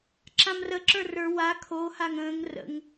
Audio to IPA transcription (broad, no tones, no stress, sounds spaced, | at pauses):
ǁ ã m r ə ǁ ə˞ r ə˞ w a kʰ o h a ŋ ə̃ː ŋ r ə̰ ŋ